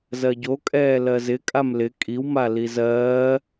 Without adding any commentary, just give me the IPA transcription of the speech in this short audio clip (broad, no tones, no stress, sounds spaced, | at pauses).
z ɜ ɟ o kʼ ɛː l ɜ z ɪ kʼ a m l ɪ kʼ i w m a l i z ɜː